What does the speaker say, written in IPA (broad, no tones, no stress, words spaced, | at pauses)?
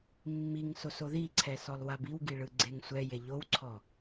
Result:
mːiŋsos oðiǀʰɛ sɔlˠwabiwɡi ɭɯɡ͡ǀeŋsʷɛje ʎowǀʰɔ